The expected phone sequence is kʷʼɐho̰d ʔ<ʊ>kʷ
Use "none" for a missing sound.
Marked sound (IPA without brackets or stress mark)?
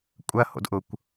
ʊ